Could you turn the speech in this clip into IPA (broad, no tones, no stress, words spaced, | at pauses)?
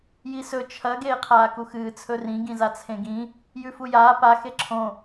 jisɵ t͡ʃʰɐ ɡeːqʰaːkuxɨː t͡sʰɵrĩ ɡĩzat͡sʰẽɡĩ | jʉfujaː pa xeǁʰõ